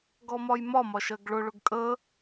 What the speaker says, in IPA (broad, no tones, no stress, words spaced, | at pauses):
ɡɔmɒjmɒmɒ ʃɜɡɭʊɭʊɡ kʼə